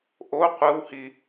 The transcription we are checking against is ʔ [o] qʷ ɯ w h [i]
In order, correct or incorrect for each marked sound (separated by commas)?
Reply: correct, correct